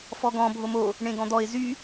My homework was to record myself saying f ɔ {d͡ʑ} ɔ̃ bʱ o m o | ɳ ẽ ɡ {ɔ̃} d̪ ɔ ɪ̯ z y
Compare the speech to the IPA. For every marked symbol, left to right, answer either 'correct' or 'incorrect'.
incorrect, correct

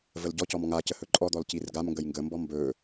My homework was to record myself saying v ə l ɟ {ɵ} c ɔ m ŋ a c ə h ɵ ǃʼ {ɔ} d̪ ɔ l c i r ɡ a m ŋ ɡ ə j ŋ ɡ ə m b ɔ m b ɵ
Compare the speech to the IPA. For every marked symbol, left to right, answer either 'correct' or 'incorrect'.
incorrect, correct

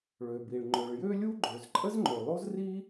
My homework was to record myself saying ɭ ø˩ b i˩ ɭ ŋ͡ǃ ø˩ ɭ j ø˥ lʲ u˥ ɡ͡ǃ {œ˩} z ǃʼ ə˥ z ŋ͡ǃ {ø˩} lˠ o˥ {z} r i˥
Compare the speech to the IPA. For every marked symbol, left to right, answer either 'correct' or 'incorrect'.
incorrect, correct, correct

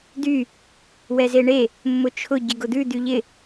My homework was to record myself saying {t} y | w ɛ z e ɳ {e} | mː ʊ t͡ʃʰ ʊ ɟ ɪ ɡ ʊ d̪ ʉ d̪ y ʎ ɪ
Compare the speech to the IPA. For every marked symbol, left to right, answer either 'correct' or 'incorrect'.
incorrect, correct

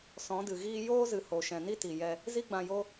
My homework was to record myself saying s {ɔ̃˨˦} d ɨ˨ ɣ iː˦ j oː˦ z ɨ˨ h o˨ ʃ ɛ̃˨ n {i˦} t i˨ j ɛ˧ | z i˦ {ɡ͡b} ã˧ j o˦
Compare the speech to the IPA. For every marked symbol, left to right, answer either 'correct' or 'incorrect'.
correct, correct, correct

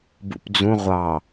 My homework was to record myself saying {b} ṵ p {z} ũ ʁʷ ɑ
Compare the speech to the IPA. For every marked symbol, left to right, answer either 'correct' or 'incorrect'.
correct, incorrect

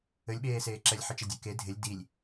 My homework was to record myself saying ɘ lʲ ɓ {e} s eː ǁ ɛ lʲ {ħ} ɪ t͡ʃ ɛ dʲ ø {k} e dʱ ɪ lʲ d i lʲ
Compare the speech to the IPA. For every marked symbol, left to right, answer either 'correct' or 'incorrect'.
incorrect, correct, correct

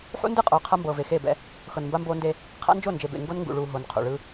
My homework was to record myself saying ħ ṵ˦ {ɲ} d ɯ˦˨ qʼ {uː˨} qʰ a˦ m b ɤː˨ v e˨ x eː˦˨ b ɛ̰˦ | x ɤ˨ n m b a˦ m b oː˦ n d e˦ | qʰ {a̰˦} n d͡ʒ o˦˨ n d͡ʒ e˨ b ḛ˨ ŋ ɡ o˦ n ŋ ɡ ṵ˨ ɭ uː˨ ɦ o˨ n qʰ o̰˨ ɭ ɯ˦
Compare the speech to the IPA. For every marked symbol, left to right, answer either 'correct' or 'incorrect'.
incorrect, incorrect, correct

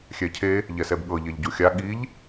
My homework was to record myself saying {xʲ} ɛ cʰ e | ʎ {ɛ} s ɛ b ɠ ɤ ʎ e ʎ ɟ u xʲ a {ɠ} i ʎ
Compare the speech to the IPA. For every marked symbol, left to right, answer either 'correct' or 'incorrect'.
correct, correct, correct

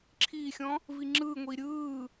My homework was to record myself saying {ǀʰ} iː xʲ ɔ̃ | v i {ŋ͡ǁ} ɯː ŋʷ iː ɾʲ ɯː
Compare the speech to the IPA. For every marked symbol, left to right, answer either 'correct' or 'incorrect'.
incorrect, correct

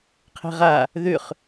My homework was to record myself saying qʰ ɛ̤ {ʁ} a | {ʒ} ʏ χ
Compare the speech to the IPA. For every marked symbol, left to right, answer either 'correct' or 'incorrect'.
correct, incorrect

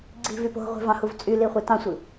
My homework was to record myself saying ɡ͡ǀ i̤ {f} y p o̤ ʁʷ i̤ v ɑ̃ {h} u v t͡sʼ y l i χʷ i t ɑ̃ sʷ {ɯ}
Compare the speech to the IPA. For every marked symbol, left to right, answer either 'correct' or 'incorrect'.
incorrect, correct, correct

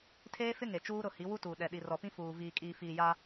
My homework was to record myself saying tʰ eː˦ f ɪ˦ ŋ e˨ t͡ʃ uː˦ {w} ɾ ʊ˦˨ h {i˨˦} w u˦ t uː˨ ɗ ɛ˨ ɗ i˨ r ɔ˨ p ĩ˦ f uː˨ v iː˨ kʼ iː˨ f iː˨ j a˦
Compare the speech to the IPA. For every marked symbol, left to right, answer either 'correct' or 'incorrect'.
incorrect, correct

